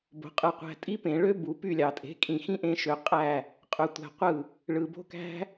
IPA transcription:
b o̤˨ qʼ ɯ˨ qʷ æ̤˧ tʼ i˦ p ẽ˨ ɭ ø˦ b u˨ p y˦˨ lʲ ɑ˨ tʼ e̤˨˦ kʼ ĩ˨ x ĩ˦ ʔ ẽ˧ ʃ ø˨ qʼ æ˦˨ | qʼ ø˧ tʷ æ̤˧ qʷ ɯ˦˨ | ɭ ɯ˨ b o̤˦ k æ̤˦

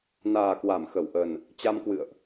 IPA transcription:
n aː˨˩ k w a˧˩ m x ə˧˩ w ʔ ə˨˩ n | t͡ɕ a˧ m k w ɨ̰˧˨ ə̯ ʔ

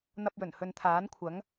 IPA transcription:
n̪ ɐ˧ p̚ j ɵ˨˩ n h ɵ˨ n t̪ʰ aː˨˥ n kʷʰ ɐ˨˥ ŋ

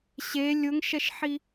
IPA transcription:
ɕ e lʲ ʊ ŋ ʃ ɛ ʃ ħ i

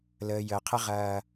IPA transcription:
l əː˨ j əː˨ qʰ ə˦ ʁ ɐː˦

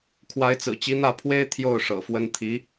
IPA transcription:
kʰ w a˧˥ ɪ̯ t͡s ɹ̩˨˩ t͡ɕ i˧˥ n̪ ä˥˩ pʰ w e˥ ɪ̯ t̪ʰ j o˥˩ ʊ̯ ʂ ɤ̰˨˩ f w ə˥ n t̪ʰ i˧˥

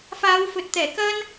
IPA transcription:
f aː˨˧ w f ɵ˨ t̚ t̪ ɛː˨˩ k ɐ˥ n

